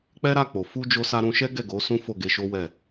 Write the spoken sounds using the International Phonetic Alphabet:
k͡p ɛ˦ ɾ a˦˨ k͡p o˨ f u˧ d͡ʒ o˧ s a˧ ɾ ũ˧ ʃ ɛ˦ ɡ ɛ˦˨ ɡ o˨˦ s ũ˦ f o˦˨ ɡ e˧ ʃ o˦ w ɛ˦˨

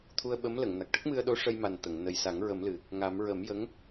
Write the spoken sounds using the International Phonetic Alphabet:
t̪ʰ u˧ ə̯ ɓ ə˧˥ m l ə˨˩˨ ŋ n a˨˩ k̚ ʈ ə˦˥ k̚ m ɨ˧ ə̯ ɗ o˧˥ ʂ ə˧ j m a˨˩ n t̪ ə˨˩˨ ŋ n ə˨˩ j s a˨˩˦ ŋ ɹ ə˨˩˦ m l ɨ˨˩ | ŋ a˨˩˦ m ɹ ə˨˩˦ m j ə˧˥ ŋ

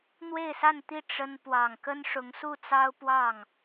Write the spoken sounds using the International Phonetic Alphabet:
n̪ w e˥˧ ɪ̯ s a˥˧ n t̪ i˥˩ ʈ͡ʂ ə˥ n p w ɑ˨˩ ŋ k ə˥ n ʂ ʊ˧˥ ŋ s u˥˩ t͡s ɑ˥ ʊ̯ p w ɑ˥˩ ŋ

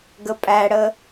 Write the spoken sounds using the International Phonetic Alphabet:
ɡ ə pʼ æ ɽ ə

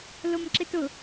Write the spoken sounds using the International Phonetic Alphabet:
l o m ǁ ɪ t ʊ

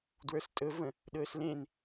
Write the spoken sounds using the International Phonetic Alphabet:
d w ə˞ s tʼ ɵ v ə̃ | ɗ ɵː s l ẽ n

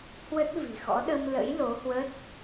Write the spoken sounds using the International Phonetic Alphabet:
h w ə˦˥ t̚ v i̤˨˩ x ɔ̰˧˥ ɗ ə˧ m l ə̰˧˥ j l o˨˦ h w ə˦˥ t̚

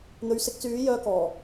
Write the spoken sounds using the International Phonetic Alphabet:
n̪ ɵ˨˥ ɥ s ɪ˨˥ k̚ t͡s yː˨˥ j œː˧ k ɔː˨˩

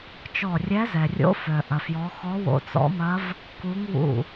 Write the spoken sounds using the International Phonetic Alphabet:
t͡ʃ ɔ˧˩ rʲ ɛ˧˥ z ɛ˩ rʲ o̰˧˥ f œ˩ ʔ ɐ˩ f j ɔ˩˧ x ɔ˧˥ w o̰˧˩ t͡s ɔ̰˧˥ m ɐ˧˥ v | k u˧˥ ŋ w ṵ˧˩

